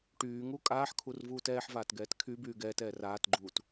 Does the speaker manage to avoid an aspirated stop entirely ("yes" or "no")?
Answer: no